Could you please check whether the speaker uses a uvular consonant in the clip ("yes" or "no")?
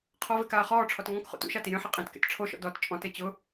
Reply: yes